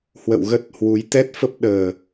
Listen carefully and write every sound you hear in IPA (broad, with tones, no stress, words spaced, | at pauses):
hwə̰˧˨wɣə˦˥t̚hwu˨˦j t̪ɛ˦˥t̚fə˦˥p̚ɗəː˨˩